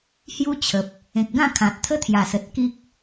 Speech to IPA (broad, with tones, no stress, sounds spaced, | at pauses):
h j u˦ t͡ɕʰ ə˨ p̚ | ẽ˨ k̚ ɡ ã˥˧ kʰ ã˨ t̚ t̪ʰ ə˦ t̪ʰ j a˨˩ s ə˨ t̚ k i˦ k̚